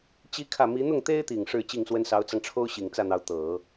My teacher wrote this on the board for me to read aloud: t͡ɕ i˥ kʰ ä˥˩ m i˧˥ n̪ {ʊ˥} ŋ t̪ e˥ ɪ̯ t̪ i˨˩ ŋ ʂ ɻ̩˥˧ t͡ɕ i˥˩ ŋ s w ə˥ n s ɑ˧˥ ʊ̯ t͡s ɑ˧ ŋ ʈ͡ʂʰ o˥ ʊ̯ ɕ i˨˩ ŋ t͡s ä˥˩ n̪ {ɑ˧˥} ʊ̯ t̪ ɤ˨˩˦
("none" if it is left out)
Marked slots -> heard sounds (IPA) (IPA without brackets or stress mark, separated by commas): ʊ˥˩, ɑ˧˥